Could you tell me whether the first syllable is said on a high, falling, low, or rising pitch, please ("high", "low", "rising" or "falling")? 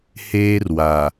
high